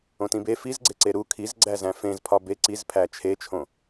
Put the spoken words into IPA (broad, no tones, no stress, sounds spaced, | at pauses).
õ t ĩ b e f i z ɡ͡ǀ e ǀ e ɾ u kʰ i z ɡ͡ǀ æ z æ̃ f ẽ z pʰ ɒ b e ǀ i z pʰ æ t͡ʃʰ e t͡ʃʰ õ